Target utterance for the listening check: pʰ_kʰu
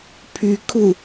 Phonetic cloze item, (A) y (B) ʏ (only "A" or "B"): A